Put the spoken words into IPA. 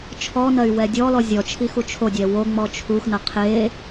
t͡ʃʰ ɔ n ɐ y̯ w ɛ dʲ ɔ l ɔ zʲ ɔ t͡ʃʰ i x u t͡ʃʰ o dʲ ɛ w o ŋ͡m ɔ t͡ʃʰ u x n ɐ qʰ e

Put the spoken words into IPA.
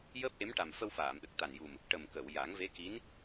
j əː˦˥ p̚ ʔ e˧˥ m ʈ a˨˩ m f ə˧ w f aː˨˩˨ m ɗ ə˨˩ k̚ t̪ a˨˩ n j u˨˩ m | ʈ ə˨˩ m k ə˨˩˨ w j a˨˩˦ ŋ v e˧˥ k i˧˥ n

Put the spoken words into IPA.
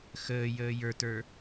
x əː j əː j ə˞ t ə˞

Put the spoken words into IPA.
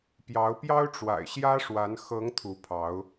p j ɑ˨˦ ʊ̯ p j ɑ˦ ʊ̯ ʈ͡ʂ w a̰˨˩ ɪ̯ ɕ j ä˦ ʂ w a˨˦ n x ɤ˨˦ ŋ t̪ʰ u˨˦ pʰ ɑ˨˦ ʊ̯

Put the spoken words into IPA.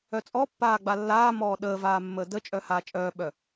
œ t͡sʼ ɔ pː aː ɡ͡b a lː aː m ɔː ɗ əː v aː mː əː d ə t͡ʃʼ œ h aː t͡ʃʼ œː ɓ œ

